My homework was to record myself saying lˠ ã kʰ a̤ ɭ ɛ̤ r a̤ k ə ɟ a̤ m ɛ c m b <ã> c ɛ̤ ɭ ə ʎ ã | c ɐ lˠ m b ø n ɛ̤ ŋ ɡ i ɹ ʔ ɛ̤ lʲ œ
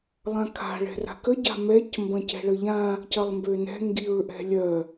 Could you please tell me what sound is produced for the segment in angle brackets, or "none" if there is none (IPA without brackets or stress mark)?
ɐ̃